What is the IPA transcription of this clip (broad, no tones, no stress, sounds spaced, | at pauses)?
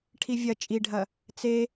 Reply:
ʈʰ i vʲ ɐ t͡ʃʼ i ɖʱ ɐ | t͡s e